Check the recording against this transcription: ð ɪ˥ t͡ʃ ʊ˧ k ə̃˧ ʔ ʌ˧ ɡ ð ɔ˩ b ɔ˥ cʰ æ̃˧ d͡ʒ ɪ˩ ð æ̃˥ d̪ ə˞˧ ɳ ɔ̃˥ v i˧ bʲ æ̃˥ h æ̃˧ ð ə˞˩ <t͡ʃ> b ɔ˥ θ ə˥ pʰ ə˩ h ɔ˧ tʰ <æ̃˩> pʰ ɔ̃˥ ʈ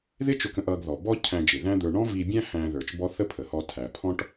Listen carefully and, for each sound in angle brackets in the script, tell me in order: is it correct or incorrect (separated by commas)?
correct, incorrect